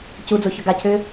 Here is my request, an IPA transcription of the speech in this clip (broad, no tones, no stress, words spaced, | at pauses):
cud͡zo çœɡacʰʏː